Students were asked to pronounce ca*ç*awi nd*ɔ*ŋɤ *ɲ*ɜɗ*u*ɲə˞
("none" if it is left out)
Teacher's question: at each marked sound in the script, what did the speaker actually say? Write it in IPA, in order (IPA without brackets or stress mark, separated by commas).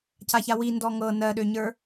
ç, ɔ, n, ø